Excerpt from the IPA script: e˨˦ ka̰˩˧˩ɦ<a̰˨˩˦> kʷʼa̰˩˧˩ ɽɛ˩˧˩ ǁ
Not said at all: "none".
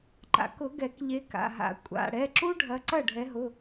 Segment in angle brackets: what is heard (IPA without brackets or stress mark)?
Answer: a̰˨˩˦